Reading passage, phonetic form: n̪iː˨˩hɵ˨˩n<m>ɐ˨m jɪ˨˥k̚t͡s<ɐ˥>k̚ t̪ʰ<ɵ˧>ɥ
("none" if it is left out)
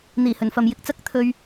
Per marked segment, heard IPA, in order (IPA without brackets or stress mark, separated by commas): f, ɐ˥, ɵ˧